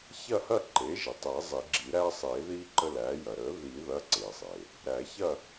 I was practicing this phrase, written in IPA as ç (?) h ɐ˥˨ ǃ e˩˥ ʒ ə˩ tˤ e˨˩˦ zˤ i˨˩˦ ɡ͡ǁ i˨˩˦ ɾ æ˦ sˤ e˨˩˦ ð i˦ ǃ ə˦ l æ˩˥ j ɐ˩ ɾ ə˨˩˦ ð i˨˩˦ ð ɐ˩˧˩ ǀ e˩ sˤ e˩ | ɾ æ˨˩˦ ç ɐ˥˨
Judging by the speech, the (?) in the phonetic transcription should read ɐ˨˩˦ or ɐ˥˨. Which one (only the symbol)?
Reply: ɐ˥˨